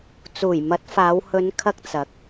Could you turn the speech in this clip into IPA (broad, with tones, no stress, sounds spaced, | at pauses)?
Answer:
t͡s uː˨˩ j m ɐ˨˥ t̚ f aː˨˧ w h ɵ˨˧ n kʰ ɐ˧ k̚ t͡s ɐ˨˥ k̚